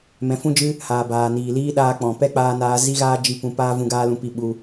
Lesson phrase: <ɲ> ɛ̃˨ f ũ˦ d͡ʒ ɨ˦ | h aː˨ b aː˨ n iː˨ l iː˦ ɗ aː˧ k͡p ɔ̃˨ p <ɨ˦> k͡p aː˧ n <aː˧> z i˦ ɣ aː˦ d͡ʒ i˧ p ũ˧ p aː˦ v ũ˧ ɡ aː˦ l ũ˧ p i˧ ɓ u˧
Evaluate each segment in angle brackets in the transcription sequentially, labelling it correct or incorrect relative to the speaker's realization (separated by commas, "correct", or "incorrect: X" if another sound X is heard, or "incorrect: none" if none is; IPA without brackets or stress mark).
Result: incorrect: m, incorrect: ɛ˦, correct